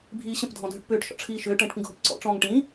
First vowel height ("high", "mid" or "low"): high